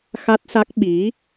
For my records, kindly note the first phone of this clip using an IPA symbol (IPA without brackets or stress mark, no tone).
x